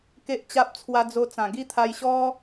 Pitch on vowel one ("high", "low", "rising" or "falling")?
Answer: high